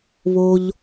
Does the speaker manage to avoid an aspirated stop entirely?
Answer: yes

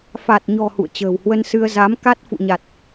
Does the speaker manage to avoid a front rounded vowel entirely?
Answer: yes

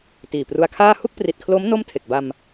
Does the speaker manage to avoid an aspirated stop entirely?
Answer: no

